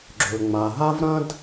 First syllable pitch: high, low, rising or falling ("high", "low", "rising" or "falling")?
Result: low